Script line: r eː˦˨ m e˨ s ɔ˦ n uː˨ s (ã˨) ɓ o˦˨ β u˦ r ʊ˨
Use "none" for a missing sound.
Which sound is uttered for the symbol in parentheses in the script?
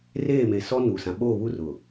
ã˨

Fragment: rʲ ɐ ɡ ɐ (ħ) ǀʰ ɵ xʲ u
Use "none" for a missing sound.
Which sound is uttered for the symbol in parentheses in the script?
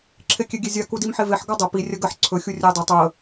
ħ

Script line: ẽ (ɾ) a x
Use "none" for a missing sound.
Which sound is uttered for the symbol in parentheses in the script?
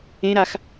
ɾ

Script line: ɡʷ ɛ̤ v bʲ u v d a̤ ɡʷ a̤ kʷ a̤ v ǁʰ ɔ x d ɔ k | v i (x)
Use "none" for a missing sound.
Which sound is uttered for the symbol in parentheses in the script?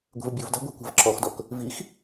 x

